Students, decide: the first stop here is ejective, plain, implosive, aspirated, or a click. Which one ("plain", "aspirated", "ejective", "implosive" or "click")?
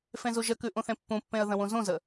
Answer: plain